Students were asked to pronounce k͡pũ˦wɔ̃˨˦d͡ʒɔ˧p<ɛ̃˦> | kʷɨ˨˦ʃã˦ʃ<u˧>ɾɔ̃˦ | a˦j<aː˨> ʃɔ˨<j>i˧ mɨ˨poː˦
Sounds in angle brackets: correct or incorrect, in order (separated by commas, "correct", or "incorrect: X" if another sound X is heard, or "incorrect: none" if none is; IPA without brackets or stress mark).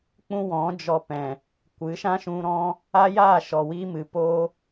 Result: incorrect: ɛ̃˨, incorrect: ũ˧, incorrect: aː˦˨, incorrect: w